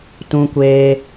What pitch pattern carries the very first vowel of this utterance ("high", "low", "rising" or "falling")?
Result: high